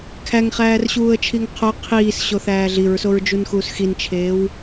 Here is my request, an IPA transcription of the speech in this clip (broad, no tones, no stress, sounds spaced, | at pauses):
kʰ æ ŋ χ æː r ɕ uː ə̯ t͡ʃʰ i ŋ qʰ o qʰ iː s ɕ o θ æː ɮ i ɹ s o ɹ d͡ʒ u n x uː s x i n t͡ʃʰ eː w